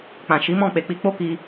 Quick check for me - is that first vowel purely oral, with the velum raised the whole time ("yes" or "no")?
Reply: no